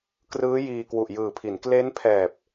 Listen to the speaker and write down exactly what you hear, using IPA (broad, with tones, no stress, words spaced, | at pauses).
krɯː˦˥ jiː˧kwu˨˩ʔjɯː˨˩pʰi˩˦n kle˦˥npʰɛː˨˩p̚